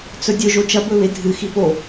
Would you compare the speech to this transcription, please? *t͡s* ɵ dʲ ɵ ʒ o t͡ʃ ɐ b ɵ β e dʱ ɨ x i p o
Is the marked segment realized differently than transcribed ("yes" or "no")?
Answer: no